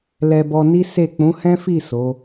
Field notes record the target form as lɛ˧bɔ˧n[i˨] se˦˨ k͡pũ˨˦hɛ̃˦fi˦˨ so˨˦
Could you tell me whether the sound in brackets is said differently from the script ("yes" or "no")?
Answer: yes